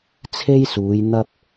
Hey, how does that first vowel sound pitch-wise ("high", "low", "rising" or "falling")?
high